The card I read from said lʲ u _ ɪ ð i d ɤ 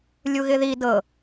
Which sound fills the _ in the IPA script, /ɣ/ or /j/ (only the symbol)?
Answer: ɣ